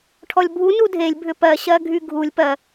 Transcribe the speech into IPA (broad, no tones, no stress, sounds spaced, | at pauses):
ʈʰ ɔ lʲ bʱ u n u dʱ e lʲ bʱ ʏ p ɜ ɕ ɜ ɡʱ y ɡʱ u lʲ p ɜ